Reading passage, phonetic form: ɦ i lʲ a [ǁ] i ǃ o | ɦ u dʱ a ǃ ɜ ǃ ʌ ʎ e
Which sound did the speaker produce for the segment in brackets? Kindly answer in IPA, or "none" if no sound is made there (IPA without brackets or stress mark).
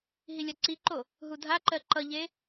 ǀ